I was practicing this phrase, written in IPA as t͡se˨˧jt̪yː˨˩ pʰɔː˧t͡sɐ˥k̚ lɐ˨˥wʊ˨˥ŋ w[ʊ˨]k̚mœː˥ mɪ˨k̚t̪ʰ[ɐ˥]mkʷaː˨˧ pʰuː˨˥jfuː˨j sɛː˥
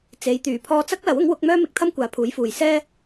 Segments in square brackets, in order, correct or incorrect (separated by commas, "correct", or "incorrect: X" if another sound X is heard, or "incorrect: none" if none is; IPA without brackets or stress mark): incorrect: ʊ˨˥, correct